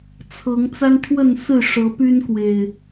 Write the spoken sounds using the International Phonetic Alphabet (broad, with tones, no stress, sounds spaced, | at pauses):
t͡sʰ ɤ˨˦ ŋ t͡s a˦ n t̪ʰ w ə˥˨ n s ɹ̩˥˨ ʂ ɤ˨˦ p y˦ n k w e˨˩ ɪ̯